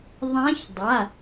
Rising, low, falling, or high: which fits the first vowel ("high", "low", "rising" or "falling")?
rising